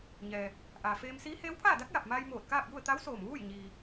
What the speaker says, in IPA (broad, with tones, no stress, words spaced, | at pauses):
ɲɛː˩ | ʔaː˩feː˧msiː˧˥ heː˧˥wpʰaː˥˨da˧˥k̚ ja˧˩p̚maː˧jmoː˧˩t̚ kaː˥˨p̚ju˥˨ə̯ t̪a˧˥wsoː˧˩mʋuː˥˨j ɲiː˩